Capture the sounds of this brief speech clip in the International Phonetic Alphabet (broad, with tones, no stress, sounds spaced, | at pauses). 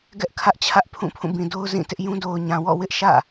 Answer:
ɡ ɛ˦ ʔ kʰ ä˦ ʔ t͡ɕʰ ä˦ ʔ pʰ ũ˦˨ pʰ ũ˦˨ b ĩ˨ d o˦ ʊ̯ z ĩ˦˨ t ɪ˦ ʔ j ũ˦ d o˨ ʊ̯ ɲ ã˨ w ɔ̰˦˨ w ɪ˦ ʔ ʃ ä̰˦˨